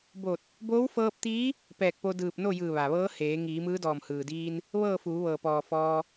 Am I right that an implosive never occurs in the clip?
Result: yes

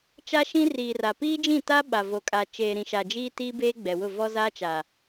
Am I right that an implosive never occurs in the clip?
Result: no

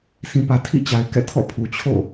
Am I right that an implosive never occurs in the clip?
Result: yes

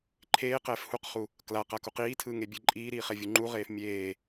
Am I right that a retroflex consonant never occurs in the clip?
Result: yes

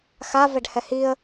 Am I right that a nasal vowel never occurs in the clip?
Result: yes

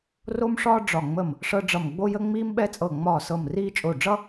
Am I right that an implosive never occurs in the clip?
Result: no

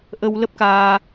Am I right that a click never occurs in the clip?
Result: yes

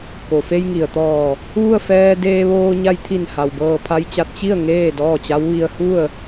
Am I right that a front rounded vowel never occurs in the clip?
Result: yes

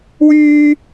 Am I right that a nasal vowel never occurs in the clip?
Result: yes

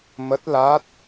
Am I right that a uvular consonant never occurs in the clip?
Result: yes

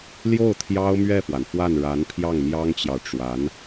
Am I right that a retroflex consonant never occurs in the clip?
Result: no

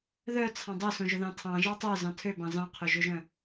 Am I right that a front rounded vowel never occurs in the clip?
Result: no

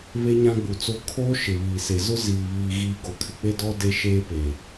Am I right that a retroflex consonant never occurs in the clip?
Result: yes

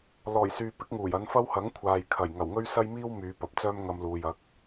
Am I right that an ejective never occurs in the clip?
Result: yes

